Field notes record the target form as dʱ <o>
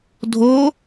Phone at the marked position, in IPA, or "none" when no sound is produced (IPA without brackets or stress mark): o